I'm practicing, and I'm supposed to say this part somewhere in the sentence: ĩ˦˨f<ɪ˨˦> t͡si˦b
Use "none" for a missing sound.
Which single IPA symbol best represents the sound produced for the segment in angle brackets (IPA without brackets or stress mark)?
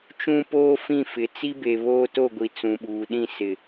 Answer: ɪ˨˦